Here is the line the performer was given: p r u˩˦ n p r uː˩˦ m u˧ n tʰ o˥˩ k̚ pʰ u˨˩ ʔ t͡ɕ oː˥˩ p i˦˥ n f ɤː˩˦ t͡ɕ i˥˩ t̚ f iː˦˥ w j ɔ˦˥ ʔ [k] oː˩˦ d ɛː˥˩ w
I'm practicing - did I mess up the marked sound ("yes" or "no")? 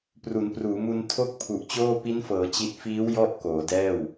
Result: no